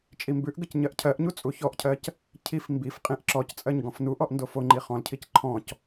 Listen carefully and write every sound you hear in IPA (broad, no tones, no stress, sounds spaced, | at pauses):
t͡ʃʼ i m b ʉ ʔ ɡ ə c ɲ ɜ ʔ cʰ ɜ ʔ ɲ u t͡sʼ u ç ɔ ʔ cʰ ɜ c | cʰ i f m b i f qʼ ĩ ʔ ǁ ɔ c t͡sʼ ɜ ɲ ɡ ɔ̃ f n u ʔ ɔ ʔ n d o f o ŋ͡ǃ i χ ɔ̃ l cʰ i c ǃʰ ɔ̃ c